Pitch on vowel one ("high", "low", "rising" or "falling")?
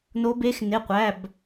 rising